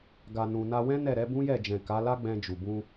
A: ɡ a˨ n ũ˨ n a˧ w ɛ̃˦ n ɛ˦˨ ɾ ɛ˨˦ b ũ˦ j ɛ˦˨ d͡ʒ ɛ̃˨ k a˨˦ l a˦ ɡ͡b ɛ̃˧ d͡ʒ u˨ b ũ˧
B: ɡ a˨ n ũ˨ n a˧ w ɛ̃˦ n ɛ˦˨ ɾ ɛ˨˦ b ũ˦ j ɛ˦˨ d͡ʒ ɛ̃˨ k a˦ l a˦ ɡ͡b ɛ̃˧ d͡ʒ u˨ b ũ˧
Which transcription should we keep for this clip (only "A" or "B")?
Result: A